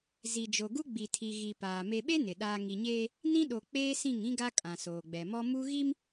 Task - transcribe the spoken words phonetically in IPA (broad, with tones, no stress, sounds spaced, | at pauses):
z i˨ d͡ʒ o˨ ɡ u˦ ɡ͡b i˨ tʰ i˨ ɣ i˨ p aː˨ m e˨ ɓ e˦ n ɪ˨ ɗ aː˨ ŋ i˨ ɲ eː˦ | n ĩ˦ ɗ o˨ k͡p eː˦ s ĩ˦˨ ŋ ĩ˦ ɡ a˦ kʼ ã˨ s oː˨ ɡ͡b ɛ˨ m ɔ˦ m u˦ ɣ i˦ m